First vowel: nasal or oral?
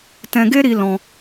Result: nasal